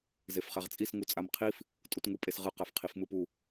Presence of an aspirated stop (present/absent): present